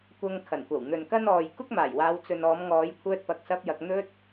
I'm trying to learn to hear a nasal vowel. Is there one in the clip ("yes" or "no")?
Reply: no